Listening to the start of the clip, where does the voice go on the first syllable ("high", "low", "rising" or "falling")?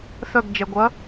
falling